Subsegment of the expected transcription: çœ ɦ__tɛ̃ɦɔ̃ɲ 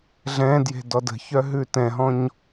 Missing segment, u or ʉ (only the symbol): ʉ